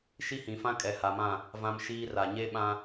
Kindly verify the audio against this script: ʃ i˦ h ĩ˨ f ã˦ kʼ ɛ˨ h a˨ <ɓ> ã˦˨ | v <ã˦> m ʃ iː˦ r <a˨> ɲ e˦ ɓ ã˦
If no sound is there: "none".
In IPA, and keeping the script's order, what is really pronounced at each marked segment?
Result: m, ã˦, a˨

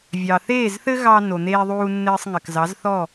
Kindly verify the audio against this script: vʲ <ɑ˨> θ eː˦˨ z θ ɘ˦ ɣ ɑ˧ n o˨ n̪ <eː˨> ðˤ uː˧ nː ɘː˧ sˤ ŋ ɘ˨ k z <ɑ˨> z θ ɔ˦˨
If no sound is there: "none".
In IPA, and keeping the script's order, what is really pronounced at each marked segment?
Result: ɑ˨, eː˧, ɑ˨˦

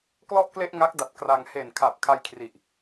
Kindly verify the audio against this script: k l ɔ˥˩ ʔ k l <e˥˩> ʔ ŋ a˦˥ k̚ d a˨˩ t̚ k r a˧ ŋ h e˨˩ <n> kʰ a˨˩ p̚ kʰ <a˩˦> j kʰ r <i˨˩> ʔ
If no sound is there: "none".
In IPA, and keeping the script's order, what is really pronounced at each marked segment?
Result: e˥˩, n, a˧, i˨˩

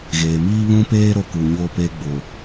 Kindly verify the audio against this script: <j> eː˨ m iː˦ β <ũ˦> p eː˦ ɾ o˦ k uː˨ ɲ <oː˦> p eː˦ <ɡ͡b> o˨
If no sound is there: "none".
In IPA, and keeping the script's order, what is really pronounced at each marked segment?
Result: ɣ, ũ˦, oː˦, ɡ͡b

